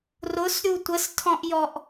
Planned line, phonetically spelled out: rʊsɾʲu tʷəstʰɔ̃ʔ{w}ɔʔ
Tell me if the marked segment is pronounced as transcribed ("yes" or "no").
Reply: no